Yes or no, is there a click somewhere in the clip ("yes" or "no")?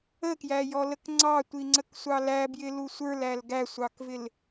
yes